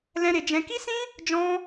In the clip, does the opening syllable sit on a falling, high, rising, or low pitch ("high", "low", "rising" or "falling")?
high